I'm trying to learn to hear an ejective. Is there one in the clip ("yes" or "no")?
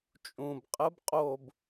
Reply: yes